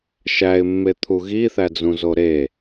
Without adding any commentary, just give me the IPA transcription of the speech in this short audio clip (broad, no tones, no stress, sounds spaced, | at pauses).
ʃ æ ɪ̯ mː e t̪ʰ u ɣ i θ æ d͡z ũ z o ɾ e